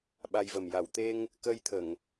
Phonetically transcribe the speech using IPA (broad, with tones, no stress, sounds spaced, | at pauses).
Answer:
ɓ a˧ j v ə˨˩ m j a˨˩˨ w t̪ e˧ ŋ | k əː˧ j t̪ʰ ə˨˩˨ ŋ